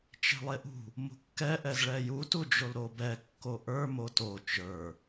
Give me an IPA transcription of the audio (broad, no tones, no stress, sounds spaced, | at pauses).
t͡ʃ e̤ lˠ e ʔ ṳ | m ṳ kː ɛ ʔ ɛ z ɭ ɛ j u t u d͡ʒ o l ɾ o b ɛ kː o ʔ ə˞ m o t o t͡ʃ ə˞